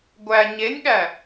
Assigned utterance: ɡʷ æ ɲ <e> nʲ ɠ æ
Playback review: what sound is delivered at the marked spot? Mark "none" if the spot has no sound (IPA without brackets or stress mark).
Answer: e